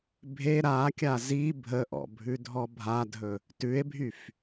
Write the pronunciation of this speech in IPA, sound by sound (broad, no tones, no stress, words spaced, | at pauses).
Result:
bʱe ɾakʲa zi bʱəʔɔ̰ bʱʉdʱɔbʱadʱɵ | tʉe̯bʱyf